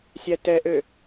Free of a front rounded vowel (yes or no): no